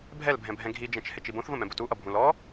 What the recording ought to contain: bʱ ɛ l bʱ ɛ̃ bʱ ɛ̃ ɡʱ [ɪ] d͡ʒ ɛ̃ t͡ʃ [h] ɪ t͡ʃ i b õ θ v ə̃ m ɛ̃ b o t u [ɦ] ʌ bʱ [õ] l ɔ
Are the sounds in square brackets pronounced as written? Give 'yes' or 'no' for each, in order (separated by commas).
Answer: no, yes, no, no